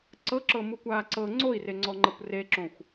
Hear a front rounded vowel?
no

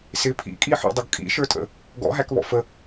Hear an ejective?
yes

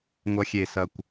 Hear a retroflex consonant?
no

